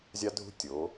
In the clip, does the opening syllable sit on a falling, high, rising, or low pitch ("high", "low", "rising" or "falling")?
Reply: high